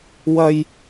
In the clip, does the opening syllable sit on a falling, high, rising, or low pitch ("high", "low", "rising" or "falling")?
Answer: low